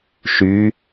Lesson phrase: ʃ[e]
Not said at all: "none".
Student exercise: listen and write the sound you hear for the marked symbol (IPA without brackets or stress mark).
y